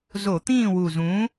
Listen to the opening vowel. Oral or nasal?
oral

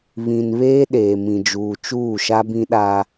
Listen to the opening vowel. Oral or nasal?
nasal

